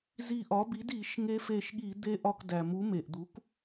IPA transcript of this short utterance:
zi˧˩ʔɒ˩˥bi˩˥d i˧˩˧ʃŋe˧ fe˧˩ʃɠi˧˩˧ d̪e˧ʔɒ˧˩kdæ˩mu˩˥ me˩ʔd̪u˩˥k

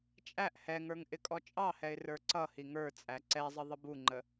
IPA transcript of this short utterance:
t͡ʃʼæʔ hɛŋə˞ŋ ʔɪkʼɔt͡ʃʼɑhɛɪ̯ rə˞ǀʌhi ŋə˞ t͡sʼæǀɛzˤə ðˤəbuŋ͡ǃə

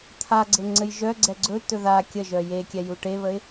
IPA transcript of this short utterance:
t̪ʰaɡ͡ǀɘ ŋ͡ǀɘjʒœɡ͡ǀɛ ɡ͡ǀɵt̪ɵ ða kʲəʒœ jekʲɛ juʈeβəɪ̯

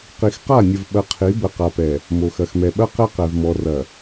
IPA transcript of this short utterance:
qi˨xqa˦˨nʲə˨v ɓɐ˨ qʰi˨˦bə˨qa˨pɛ˨ | mo˨xɐ˨xmɛ˨ɓɐ˦ qɛ˦qɛ˨vmɔ˨ rɐ˨

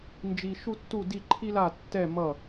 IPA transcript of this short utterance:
nd͡ʒi˥ ʃu˥tːu˥˧di˥˧ ǃʰi˥la˥˧ tːɛ˥˧ mʌ˥˧

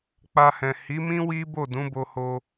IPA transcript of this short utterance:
k͡pa˧hɛ̃˨ hi˨˦mĩ˦ wi˦bo˦˨ dũ˨˦bo˧ho˧

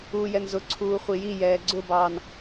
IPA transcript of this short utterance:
uːjɛnzʊ ǀʰuːχʷiji jɛːɡ͡ǀʊbɑːn

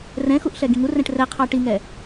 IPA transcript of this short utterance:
rɛ̃xuʔ ɬɛɡĩŋurɛ̃ʈ rɛqʰɑ ʈiŋɛ

